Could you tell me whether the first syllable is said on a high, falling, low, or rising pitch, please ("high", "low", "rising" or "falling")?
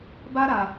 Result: high